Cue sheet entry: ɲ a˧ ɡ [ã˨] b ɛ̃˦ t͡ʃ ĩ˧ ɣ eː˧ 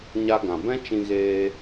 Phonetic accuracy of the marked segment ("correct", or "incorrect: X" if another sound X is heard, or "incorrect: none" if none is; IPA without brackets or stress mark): correct